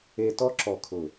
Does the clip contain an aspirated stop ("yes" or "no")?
yes